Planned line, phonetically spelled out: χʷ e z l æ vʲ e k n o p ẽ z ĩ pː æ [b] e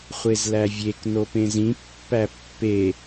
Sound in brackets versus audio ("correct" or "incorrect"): incorrect